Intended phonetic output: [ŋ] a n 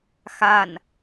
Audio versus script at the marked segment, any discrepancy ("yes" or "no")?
yes